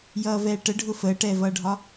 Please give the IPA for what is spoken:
jʌːvɛːʈəɖʱʊ fəːʈɛːvʌːɖʱɒ

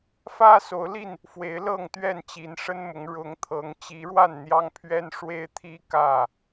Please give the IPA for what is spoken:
fä˦so˨˦ʊ̯li˥˨n | fwe˨˦ɪ̯lɤ˥˨ŋt̪ɥɛ˥˨nt͡ɕi˨˦n ʂə˦nmʊ˨˦ŋ ɻʊ˨˦ŋt̪ʰɤ˨˦ŋ t͡ɕi˨˦ ɻwa˥˨nn̪jɑ˦ŋpʰɥɛ˦n ʂwe˦ɪ̯t̪ʰi˦ kä˥˨

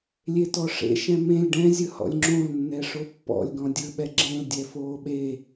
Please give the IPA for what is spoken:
lʲetɔʂḛ ʃɛ̃mẽlʲ ɖɛ̃zʲɯ hɔ̰lʲŋ͡ǁõlnːɛ ʂopːɔ̰lʲ ɡɔ̃dʲɯɓɛ ɡ͡ǁẽldʲɛ foːɓe

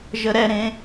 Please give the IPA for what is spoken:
ʒəɾɛɾẽ

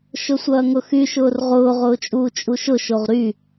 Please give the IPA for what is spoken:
ʃʊsʷɐːŋʊxy ʃʊːrʁʊː ʁʊːt͡ʃʼuːt͡ʃʼuʃʊ ʃoʁɾy

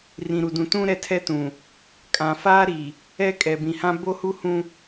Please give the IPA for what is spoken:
rĩ˨ɾu˨dũ˨ tũ˦ ɾɛ˦˨tʰɛ˦tũ˨ | kʼã˨faː˦ɾi˨ | ɛ˦ kʼɛ˨bĩ˨hã˦ bo˦hu˦ hũ˦

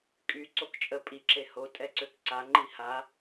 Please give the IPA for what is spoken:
kʼy ǀokt͡ʃʼə pʼiǁe ho tʼɛǀøkǀaŋ͡ǃi ha

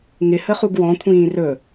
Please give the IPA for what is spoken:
ŋɪhə χuɡwɔ̃kʷʰĩː rɵ

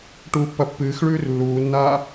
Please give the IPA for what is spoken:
ʈuːpːɐpːɨːxɭʉːr lːuːnːaː

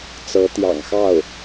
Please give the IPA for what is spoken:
t͡sɤ˧˥t̪jɑ̰˨˩ŋxɑ˥˩ʊ̯

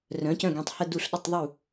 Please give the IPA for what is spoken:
rœ̃˩˥cœ̃˥˩ɡẽ˥˩tˤ hə˥˧du˥˩ɬɗə˥˧tˤ ðˤu˥˩

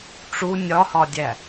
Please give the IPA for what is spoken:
ʈ͡ʂu nʲɒhɒdʲæ

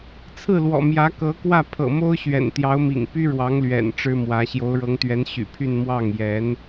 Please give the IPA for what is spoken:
t͡sʰɹ̩˥˩lwɔ̰˨˩ mjä˧˥ kɤ˧˥kwä˥˩ pʰɤ̰˨˩mo˥ʊ̯ɕɥɛ̰˨˩n t̪jɑ˧˥ʊ̯mḭ˨˩ŋ py˥ɻwɑ˧˥ŋ lɥɛ̰˨˩n ʈ͡ʂɻ̩˥mwä˧˥ ɕjo˧˥ʊ̯ɻɤ˧˥ŋt̪ɥɛ˧˥n ɕy̰˨˩pʰy˥˧n mwɑ˥˩ŋjɛ˧˥n

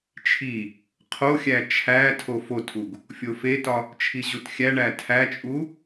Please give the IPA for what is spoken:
t͡ʃʰi | qʰoxʲæ t͡ʃʰæ tʰofotʰuɡ | fʲofetɒ | t͡ʃʰiʑutxʲæɳæ tʰæt͡ʃʼu

